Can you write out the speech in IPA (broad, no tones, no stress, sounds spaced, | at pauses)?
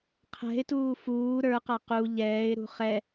qʰ ɛ̤ ɪ̯ t uː f uː ɾ ə˞ q a q u ʎ ɛː ɪ̯ ɾ ṳ χ ɛ